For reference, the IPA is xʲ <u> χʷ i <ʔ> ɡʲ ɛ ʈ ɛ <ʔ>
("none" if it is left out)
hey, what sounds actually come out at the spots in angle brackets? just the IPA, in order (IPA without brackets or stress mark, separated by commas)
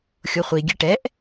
o, none, ʔ